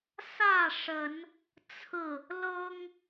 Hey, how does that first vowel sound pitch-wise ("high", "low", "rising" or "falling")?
falling